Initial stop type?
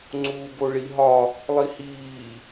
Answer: click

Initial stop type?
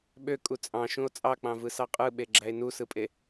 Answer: implosive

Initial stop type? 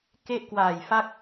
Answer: plain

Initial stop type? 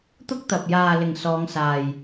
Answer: plain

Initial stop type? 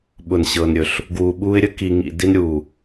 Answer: implosive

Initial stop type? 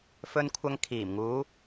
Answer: aspirated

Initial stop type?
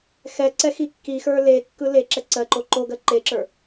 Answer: click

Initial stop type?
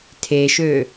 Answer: aspirated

